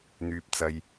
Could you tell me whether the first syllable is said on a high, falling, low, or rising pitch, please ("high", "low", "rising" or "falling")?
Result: low